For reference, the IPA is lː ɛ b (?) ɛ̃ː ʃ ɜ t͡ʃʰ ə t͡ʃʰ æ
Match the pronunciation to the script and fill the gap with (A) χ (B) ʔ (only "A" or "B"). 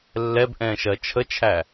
B